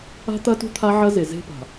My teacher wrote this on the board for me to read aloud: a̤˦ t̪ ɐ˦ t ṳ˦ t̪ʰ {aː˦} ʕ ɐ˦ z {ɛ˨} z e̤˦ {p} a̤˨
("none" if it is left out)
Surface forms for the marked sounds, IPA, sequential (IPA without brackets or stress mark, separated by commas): a˦, e˨, p